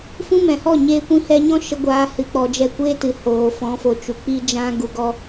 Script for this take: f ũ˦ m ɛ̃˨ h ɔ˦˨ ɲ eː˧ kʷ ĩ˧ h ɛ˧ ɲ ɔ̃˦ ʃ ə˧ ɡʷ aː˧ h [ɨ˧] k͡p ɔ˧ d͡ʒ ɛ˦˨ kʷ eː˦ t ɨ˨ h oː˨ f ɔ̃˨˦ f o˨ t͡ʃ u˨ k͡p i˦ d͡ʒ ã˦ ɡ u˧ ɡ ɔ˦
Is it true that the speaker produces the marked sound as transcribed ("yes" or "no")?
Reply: yes